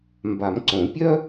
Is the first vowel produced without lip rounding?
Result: yes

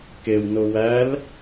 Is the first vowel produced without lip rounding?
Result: yes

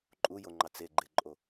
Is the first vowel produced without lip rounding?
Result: no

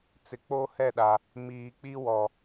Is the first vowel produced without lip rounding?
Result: yes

